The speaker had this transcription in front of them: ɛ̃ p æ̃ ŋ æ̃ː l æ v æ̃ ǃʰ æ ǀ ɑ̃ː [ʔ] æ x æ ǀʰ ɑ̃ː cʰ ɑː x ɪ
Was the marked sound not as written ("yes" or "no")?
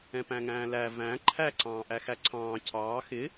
no